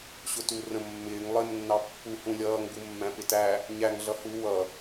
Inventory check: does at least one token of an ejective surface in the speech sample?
no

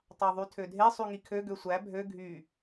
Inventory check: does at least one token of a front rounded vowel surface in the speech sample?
yes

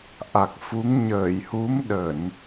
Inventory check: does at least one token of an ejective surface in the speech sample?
no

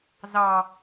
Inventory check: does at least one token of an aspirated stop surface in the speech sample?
no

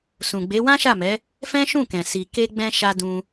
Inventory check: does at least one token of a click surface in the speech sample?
no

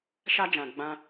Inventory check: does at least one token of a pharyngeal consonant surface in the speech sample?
no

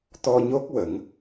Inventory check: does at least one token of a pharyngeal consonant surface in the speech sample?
no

